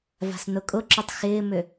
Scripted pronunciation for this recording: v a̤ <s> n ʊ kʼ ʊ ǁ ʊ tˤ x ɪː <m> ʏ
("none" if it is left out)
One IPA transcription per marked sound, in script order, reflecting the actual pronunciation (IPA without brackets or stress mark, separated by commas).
s, m